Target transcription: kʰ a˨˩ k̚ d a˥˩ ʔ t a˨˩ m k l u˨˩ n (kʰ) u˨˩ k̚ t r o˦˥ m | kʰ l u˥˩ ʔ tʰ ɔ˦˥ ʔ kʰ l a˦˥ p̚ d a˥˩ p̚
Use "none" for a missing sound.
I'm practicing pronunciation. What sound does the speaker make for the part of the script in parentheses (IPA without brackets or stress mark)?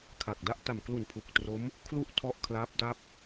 pʰ